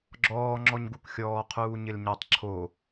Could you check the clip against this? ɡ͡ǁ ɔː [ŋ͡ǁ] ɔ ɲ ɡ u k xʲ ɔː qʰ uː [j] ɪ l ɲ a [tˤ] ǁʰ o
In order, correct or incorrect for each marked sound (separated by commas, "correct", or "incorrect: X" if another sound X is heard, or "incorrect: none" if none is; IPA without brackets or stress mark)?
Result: correct, incorrect: ɲ, correct